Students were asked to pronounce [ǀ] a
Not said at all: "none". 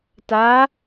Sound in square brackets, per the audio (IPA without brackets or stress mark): t